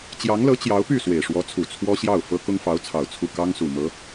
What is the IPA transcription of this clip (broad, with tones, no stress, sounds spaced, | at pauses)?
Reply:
t͡ɕ j ɑ˧˥ ŋ l ɤ˧˥ t͡ɕ j ɑ˧˥ ʊ̯ p y˥˩ s w e˨˩ ɪ̯ ʂ w ɔ˧˥ t͡sʰ u˨˩ t͡sʰ w ɔ˥ ɕ j ɑ˥˩ ʊ̯ f ɤ˥ k ʊ˥ ŋ f ɑ˧˥ ʊ̯ t͡sʰ ɑ˨˩ ʊ̯ t͡sʰ u˥˩ k ɑ˥ ŋ s u˨˩ m ɤ˧˥